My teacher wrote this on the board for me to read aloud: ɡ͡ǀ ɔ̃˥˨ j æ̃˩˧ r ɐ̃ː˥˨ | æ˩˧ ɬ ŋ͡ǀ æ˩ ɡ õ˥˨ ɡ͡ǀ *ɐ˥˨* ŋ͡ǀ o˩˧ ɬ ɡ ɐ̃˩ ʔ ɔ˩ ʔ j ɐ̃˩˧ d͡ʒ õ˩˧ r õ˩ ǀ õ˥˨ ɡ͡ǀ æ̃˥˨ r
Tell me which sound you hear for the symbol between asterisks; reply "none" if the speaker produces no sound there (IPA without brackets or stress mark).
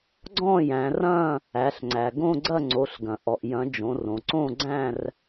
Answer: ɐ˥˨